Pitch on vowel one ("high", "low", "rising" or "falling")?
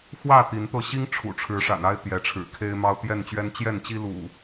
falling